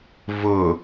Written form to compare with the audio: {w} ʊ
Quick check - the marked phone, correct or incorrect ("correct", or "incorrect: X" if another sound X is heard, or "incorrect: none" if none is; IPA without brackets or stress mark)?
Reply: incorrect: v